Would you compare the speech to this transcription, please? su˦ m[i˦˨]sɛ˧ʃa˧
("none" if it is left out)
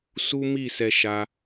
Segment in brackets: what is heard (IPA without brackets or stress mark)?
i˦˨